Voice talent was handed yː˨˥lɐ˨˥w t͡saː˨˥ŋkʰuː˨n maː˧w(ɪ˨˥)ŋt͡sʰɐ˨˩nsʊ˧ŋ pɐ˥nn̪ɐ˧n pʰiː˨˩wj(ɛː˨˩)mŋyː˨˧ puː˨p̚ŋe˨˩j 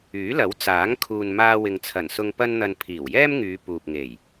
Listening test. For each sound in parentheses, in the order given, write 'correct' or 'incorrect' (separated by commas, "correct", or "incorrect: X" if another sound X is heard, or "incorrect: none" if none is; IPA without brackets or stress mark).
incorrect: ɪ˨, incorrect: ɛː˥